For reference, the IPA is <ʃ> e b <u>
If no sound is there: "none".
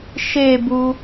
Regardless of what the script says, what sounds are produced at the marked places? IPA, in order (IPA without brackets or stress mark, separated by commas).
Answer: ʃ, u